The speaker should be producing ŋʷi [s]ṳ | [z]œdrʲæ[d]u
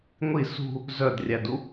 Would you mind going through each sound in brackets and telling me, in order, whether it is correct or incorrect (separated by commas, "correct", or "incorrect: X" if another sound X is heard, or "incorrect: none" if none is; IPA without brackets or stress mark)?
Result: correct, correct, correct